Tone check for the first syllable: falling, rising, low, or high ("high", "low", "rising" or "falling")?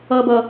low